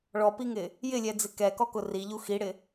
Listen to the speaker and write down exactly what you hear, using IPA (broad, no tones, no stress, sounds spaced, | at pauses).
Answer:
ɭ ɔ p i ŋ ɪ | j ɪ lʲ ɛ d͡z ɪ k ɛ k ɔ k ʊ r i ʎ u x i ɽ ɪ